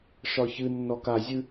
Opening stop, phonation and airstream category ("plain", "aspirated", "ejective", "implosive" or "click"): plain